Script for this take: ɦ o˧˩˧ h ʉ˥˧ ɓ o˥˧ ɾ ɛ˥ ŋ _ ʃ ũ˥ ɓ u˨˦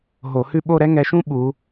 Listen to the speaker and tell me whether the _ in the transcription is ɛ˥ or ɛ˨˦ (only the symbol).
ɛ˨˦